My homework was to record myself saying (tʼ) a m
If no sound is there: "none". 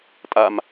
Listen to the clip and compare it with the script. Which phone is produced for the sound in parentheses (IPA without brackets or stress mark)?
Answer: tʼ